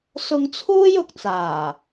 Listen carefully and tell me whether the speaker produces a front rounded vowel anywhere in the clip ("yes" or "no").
no